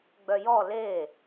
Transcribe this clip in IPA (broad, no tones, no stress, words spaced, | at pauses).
ɡ͡bœjɔ le